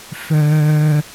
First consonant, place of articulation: labial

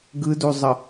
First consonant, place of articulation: velar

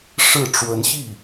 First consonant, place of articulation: retroflex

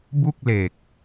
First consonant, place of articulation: labial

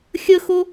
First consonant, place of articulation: velar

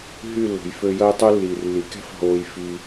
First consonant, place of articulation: glottal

